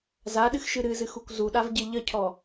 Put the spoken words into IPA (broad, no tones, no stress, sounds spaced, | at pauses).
z a ɗ ɨ x ʃ ɨ ɾ ɨ z ɨ x u kʷ z u ɗ a v ɟ e ʎ ə cʰ ɔ